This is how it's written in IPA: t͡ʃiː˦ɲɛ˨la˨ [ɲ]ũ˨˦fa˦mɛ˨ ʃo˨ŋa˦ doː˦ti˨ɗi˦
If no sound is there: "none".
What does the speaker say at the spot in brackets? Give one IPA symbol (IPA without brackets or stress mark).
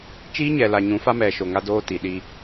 ɲ